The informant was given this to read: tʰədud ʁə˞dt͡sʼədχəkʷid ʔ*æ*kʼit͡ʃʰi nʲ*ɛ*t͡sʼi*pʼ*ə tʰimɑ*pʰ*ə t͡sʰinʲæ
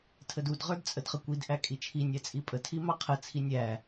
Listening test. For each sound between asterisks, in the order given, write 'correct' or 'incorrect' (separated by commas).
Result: correct, incorrect, correct, incorrect